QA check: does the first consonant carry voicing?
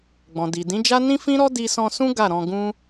yes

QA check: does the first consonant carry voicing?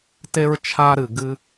no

